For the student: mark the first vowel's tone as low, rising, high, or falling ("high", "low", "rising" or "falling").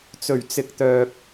low